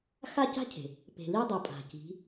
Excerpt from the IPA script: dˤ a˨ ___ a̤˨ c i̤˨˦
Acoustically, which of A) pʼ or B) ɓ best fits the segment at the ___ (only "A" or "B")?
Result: A